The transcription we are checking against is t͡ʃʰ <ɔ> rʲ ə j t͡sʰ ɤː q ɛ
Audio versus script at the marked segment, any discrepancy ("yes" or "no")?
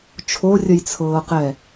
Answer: yes